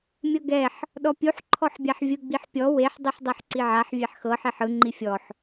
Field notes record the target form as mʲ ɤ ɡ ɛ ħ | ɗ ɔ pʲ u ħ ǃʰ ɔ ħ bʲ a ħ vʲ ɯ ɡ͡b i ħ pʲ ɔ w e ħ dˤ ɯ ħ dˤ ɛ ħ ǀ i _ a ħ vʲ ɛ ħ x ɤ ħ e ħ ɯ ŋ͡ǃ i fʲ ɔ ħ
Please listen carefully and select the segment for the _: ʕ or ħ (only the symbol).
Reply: ʕ